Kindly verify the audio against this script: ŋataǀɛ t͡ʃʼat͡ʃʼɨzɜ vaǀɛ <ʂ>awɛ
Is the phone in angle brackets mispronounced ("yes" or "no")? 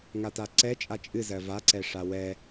no